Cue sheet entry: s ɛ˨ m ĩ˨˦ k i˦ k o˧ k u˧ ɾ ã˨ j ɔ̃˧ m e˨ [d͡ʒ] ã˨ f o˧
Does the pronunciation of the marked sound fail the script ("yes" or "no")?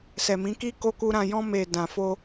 yes